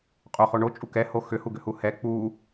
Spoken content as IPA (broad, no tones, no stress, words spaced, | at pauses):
qʼoχo ɳot͡ʃʼu kɛho xʏhuɡʏhu hɛ k͡pu